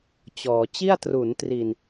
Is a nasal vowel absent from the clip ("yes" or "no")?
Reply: yes